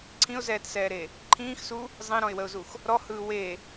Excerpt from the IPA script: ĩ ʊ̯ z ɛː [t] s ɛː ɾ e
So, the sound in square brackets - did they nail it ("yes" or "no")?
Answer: yes